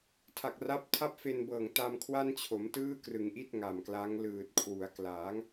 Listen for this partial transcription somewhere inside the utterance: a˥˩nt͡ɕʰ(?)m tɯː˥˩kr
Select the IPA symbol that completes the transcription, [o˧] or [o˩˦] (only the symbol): o˩˦